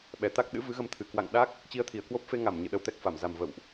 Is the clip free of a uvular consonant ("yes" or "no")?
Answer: yes